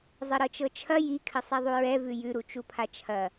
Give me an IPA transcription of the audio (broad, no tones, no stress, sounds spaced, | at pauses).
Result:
zˤ ɘ ɾ ɤ t͡ʃ ɤ t͡ʃʰ ɐ j i kʰ ɘ sˤ ɛ ðˤ u ɹ ɛ v ʉ j ʉ ɾ u t͡ʃ u pʰ a t͡ʃʰ ɐ